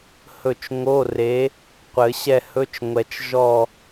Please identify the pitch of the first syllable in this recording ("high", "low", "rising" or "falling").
falling